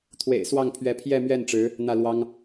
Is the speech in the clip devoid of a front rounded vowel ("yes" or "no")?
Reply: yes